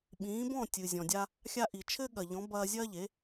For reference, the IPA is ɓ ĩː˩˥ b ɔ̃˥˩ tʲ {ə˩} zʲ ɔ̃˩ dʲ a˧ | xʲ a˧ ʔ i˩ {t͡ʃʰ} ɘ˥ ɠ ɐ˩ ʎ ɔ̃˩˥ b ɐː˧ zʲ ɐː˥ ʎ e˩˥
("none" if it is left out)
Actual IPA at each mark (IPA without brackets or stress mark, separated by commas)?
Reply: ɨ˩, t͡ʃʰ